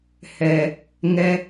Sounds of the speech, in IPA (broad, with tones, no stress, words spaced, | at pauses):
hɛ˨ | ŋɛ˧